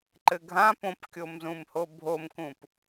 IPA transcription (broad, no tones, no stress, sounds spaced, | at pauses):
ǃ ɘ ɡʱ ã p õ p kʲ o m z ũ m h o bʱ o m k ũ p